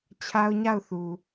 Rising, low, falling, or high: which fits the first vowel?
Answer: high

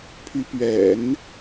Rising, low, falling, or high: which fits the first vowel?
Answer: rising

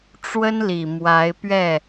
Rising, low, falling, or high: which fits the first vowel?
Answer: high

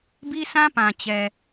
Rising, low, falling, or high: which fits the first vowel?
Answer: high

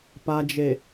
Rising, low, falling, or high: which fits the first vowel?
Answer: low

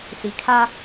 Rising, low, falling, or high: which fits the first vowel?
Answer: low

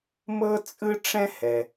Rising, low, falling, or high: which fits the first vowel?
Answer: high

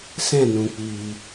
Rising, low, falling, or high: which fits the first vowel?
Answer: falling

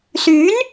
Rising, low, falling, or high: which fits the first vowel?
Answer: rising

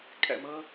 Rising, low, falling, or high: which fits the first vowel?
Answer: low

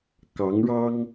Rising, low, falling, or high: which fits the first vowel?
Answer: rising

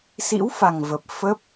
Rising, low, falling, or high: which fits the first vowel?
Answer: rising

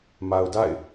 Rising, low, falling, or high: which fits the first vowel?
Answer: low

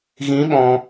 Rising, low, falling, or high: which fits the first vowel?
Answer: rising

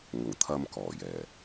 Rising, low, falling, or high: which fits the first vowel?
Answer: low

